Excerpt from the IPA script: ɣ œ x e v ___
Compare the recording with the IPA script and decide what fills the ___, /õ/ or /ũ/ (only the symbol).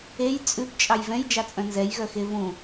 ũ